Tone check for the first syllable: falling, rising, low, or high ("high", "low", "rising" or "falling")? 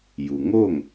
low